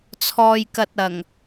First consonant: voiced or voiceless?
voiceless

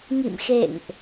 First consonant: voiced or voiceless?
voiced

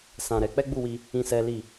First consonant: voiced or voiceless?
voiceless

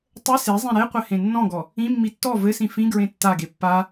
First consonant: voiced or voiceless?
voiceless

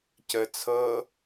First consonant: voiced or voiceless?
voiceless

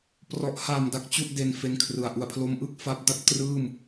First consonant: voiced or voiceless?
voiceless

